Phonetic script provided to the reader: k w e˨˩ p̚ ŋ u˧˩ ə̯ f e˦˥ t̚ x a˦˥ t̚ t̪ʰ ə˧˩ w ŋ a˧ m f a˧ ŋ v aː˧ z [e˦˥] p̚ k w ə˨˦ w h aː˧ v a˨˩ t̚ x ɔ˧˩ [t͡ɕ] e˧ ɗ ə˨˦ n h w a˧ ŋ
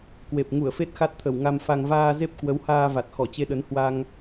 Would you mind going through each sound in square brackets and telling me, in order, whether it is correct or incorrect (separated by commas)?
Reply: correct, correct